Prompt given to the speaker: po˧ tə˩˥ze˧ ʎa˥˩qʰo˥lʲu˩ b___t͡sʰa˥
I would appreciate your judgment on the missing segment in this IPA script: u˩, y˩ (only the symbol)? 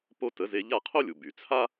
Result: y˩